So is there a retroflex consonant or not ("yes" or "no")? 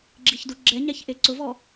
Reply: no